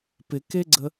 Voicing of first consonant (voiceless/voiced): voiceless